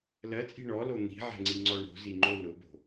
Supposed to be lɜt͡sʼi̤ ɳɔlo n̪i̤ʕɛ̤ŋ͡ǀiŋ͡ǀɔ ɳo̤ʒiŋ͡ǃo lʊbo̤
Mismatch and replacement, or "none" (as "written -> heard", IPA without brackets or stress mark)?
ʒ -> z